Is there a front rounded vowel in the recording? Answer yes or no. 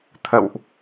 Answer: no